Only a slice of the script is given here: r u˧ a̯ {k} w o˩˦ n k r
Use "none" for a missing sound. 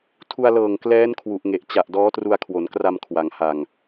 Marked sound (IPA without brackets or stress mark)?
kʰ